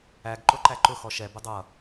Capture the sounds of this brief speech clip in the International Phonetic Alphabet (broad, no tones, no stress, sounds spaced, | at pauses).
æ ɡ ǃ ʊ ǃ æ ǃ ʊ x ɔ ʃ ɛ b ʊ dˤ ʌ